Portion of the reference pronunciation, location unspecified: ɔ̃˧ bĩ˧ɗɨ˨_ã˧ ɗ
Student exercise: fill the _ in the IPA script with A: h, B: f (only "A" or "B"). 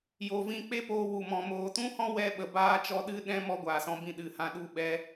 A